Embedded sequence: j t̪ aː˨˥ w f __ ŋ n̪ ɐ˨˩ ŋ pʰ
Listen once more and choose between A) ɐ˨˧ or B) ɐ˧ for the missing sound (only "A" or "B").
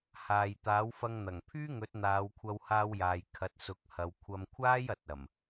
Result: B